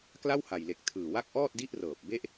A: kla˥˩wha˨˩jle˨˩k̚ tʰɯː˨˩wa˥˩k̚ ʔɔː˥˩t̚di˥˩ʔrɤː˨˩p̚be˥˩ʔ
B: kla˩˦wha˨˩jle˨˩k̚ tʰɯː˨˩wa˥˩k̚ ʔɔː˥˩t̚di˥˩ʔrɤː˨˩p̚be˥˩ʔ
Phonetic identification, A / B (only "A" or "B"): A